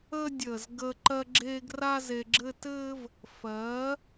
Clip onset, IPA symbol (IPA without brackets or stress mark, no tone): əː